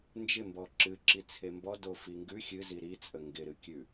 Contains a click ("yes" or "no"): yes